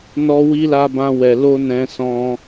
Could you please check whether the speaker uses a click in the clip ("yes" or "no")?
no